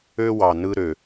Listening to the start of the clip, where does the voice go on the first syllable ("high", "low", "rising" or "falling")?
high